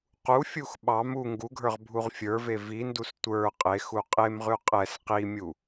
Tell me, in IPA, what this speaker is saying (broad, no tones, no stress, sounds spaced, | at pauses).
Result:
q u fʲ u x ɓ ɑ m u ŋ ɡ u ɡʱ ə˞ ʁ bʱ u ʁ fʲ ə˞ v e v i n d u s tʷ ə˞ qʼ e x u qʼ e m ʁ ʉ qʼ ɛ s q i mʲ u